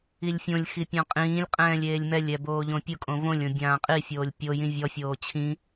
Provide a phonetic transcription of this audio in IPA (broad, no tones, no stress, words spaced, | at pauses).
ilʲfʲõlʲxi pʲɔ̃qʼĩːlʲqʼɛ̃ːlʲ eːlʲmɛlʲɛ boːʎõpʲʊkʼõ võlʲõ bʲãːqʼifʲoːlʲ pʲo jĩvʲɔfʲoː t͡ɕʰĩ